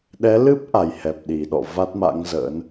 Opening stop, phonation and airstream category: implosive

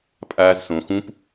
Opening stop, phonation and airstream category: ejective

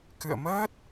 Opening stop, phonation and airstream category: plain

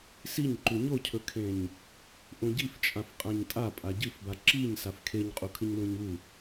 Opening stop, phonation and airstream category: click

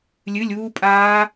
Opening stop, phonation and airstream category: ejective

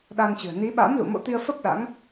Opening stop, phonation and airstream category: implosive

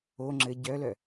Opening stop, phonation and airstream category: click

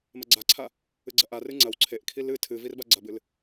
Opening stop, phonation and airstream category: click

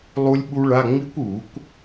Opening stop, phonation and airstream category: implosive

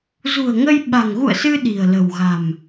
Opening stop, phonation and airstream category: implosive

